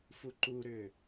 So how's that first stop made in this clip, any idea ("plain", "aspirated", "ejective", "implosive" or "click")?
click